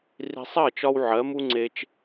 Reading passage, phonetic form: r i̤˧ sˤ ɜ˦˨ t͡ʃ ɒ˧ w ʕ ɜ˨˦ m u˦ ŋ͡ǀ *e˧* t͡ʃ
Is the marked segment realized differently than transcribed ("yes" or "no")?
no